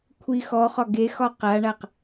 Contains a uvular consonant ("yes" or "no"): yes